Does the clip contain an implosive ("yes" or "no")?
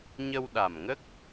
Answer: yes